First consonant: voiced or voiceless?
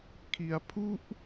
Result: voiceless